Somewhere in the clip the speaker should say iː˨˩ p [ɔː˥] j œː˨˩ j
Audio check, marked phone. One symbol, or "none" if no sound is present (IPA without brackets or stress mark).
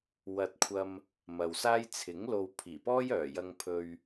ɔː˥